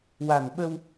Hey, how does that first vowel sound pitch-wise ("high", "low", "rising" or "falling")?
low